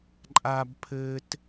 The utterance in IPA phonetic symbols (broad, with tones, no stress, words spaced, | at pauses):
ǃʼa˧bpʰɘː˧t